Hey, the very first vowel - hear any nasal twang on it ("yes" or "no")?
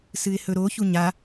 no